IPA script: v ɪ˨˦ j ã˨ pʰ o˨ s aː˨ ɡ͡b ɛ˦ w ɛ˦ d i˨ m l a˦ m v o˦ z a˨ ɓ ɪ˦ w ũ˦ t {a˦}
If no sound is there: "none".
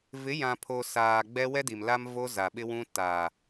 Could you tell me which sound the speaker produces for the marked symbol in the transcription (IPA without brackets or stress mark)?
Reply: a˨